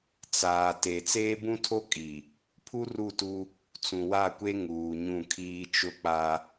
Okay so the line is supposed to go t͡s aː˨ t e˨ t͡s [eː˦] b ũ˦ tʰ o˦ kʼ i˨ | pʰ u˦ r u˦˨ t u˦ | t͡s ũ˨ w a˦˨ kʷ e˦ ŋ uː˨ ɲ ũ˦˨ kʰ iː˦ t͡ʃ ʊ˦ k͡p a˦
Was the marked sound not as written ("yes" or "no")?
no